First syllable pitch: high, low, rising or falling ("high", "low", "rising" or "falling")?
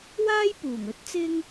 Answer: high